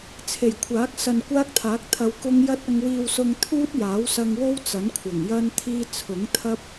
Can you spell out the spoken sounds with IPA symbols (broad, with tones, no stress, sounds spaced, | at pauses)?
t͡sʰ e˨˩ j kʷʰ aː˨˥ k̚ s ɐ˧ n kʷ aː˥ k̚ t̪ʰ aː˨˥ k̚ t̪ʰ ɐ˧ w k ʊ˥ ŋ j ɐ˥ t̚ ɐ˧ ŋ w iː˧ w s ʊ˧ ŋ t̪ʰ uː˥ t̚ j aː˨˥ w s ɐ˧ ŋ w o˥ w t͡s ɐ˨˥ n kʷʰ ɐ˨˩ ŋ j ɐ˥ n t̪ʰ iː˥ t͡sʰ ʊ˨˥ ŋ t̪ʰ ɐ˥ p̚